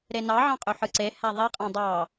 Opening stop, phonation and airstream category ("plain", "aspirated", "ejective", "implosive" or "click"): ejective